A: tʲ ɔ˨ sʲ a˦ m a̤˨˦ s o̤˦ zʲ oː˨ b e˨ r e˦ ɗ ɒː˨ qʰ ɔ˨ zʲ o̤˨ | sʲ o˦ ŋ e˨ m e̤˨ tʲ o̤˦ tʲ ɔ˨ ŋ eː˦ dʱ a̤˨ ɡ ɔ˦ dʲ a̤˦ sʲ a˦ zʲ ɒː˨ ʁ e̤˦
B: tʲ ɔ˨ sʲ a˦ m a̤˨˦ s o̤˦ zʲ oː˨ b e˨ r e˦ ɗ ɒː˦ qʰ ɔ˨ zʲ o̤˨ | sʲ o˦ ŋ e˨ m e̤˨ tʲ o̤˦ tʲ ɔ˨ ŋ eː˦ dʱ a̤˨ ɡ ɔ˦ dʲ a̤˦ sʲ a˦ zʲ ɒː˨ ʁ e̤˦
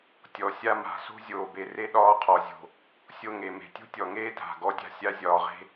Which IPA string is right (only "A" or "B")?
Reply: B